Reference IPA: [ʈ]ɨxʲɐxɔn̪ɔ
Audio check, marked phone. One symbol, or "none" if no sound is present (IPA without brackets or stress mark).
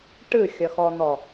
ʈ